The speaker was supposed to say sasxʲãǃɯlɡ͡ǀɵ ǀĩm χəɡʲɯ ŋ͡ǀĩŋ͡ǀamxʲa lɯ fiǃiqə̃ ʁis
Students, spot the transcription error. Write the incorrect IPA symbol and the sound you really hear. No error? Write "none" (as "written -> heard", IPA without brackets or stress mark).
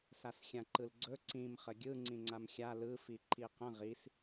none